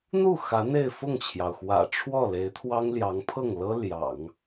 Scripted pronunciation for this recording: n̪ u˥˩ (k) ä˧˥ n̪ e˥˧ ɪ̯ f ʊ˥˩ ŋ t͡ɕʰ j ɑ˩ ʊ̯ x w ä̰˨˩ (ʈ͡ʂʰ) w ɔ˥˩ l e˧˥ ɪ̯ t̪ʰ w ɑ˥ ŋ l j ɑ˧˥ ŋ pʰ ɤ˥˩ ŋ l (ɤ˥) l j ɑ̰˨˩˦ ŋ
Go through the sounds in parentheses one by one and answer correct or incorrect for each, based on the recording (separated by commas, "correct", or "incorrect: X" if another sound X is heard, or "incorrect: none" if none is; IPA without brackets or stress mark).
incorrect: x, correct, correct